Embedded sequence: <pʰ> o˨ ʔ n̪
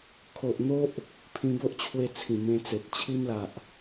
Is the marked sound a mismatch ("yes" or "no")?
yes